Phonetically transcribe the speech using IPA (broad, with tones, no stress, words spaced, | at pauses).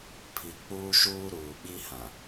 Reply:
pʰi˨ k͡puː˦ʃuː˦ ɾuː˨ɓi˦hã˨